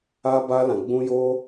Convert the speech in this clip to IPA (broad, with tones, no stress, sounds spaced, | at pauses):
a˦ b a˦ l ã˧ ɡ͡b ũ˦ j o˦